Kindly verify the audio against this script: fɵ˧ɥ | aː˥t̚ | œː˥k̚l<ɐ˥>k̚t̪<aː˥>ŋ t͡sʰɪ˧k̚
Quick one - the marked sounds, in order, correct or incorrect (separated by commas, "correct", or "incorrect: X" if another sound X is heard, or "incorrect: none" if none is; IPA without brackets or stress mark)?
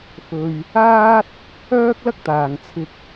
correct, incorrect: aː˨